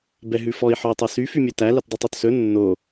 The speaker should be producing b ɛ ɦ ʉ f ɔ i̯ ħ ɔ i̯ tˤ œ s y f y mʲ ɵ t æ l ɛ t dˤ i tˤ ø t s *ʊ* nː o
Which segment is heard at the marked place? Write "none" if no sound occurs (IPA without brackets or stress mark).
ɵ